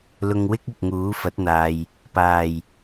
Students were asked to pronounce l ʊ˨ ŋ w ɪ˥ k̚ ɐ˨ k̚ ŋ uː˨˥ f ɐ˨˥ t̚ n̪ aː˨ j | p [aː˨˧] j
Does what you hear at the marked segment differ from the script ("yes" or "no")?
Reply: yes